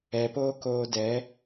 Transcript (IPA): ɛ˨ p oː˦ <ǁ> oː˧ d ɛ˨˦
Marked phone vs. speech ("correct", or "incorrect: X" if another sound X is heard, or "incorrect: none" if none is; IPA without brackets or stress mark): incorrect: k